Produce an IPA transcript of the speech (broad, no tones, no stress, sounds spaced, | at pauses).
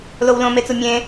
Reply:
l o w l õ m e t͡s u mʲ ẽ